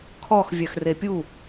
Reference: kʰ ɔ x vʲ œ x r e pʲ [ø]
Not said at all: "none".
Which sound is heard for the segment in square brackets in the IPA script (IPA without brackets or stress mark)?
u